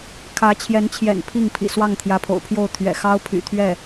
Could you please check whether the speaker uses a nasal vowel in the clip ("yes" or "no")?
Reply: no